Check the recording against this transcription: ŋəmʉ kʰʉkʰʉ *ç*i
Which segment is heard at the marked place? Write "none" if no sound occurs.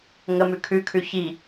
ç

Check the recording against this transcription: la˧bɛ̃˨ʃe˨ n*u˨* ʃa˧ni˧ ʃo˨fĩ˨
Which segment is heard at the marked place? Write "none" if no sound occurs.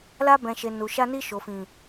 u˨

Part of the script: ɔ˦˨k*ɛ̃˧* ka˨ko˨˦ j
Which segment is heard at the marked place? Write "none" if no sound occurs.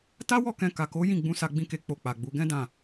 ɛ̃˧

